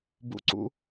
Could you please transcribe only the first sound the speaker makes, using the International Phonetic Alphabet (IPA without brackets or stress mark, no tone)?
b